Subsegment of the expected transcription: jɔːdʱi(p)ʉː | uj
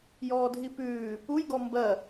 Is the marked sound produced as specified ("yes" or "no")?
yes